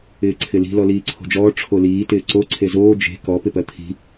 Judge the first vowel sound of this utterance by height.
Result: high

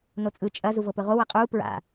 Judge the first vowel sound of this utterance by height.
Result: mid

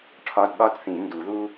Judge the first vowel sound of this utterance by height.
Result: low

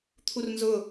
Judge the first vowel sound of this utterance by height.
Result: high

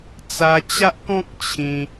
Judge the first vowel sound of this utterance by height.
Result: low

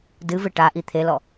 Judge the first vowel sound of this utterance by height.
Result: high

